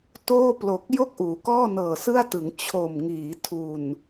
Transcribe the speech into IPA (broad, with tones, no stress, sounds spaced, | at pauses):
t oː˥˩ p l o˨˩ k̚ j o˥˩ k̚ ʔ uː˩˦ k ɔː˥˩ n ɤː˨˩ s ɯ˥˩ a̯ t ɯ˩˦ ŋ t͡ɕʰ o˨˩ m ŋ iː˩˦ tʰ u˨˩ n